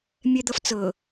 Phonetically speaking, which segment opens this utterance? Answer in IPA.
mʲ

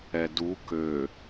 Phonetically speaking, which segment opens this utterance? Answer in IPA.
ɛ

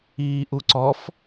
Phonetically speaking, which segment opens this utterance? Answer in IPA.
iː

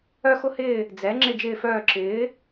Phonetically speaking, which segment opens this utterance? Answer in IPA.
œ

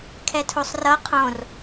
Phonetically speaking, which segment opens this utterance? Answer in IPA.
kʰ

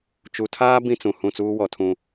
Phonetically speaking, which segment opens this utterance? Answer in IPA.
t͡ʃ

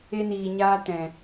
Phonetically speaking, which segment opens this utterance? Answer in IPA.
e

